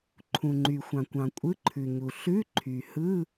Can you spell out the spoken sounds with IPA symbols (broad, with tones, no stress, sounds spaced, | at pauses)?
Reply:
ǃʰ ũ˩ ŋ͡ǃ y˩ xʷ ɑ̃˩ kʷ ɑ̃˩ kʷʼ ɯ˧˥˧ ǃʰ ʉ˩ ɲ u˩ ɬ ʉ˧˥˧ ǃʰ y˩ h ɯ˧˥˧